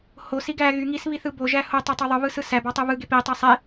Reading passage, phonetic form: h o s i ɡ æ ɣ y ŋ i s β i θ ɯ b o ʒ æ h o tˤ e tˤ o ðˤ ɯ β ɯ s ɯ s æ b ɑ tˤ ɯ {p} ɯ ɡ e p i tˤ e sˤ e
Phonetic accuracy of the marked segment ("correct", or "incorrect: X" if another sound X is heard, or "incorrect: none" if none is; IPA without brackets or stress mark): incorrect: β